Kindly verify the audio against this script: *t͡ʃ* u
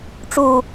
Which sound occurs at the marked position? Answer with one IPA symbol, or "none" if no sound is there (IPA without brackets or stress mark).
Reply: ʈ͡ʂ